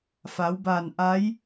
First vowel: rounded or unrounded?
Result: unrounded